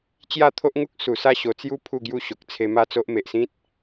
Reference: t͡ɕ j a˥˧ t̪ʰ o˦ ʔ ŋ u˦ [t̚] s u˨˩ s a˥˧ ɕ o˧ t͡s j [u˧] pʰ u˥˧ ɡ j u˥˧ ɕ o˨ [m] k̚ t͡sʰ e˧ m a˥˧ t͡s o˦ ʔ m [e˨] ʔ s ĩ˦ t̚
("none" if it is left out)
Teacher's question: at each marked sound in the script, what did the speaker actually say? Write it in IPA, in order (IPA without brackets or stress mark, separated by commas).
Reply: k̚, u˦, none, e˨